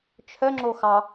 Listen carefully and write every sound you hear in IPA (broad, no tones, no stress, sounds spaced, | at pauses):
t͡ʃʰ œ ŋ͡ǁ o x ɑ